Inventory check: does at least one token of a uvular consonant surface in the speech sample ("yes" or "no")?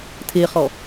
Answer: yes